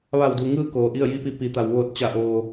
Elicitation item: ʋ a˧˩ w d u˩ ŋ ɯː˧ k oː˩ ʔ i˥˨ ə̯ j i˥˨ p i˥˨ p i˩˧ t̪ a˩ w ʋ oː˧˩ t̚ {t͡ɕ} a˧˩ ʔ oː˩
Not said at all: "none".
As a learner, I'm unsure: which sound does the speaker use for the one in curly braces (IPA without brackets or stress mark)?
t͡ɕ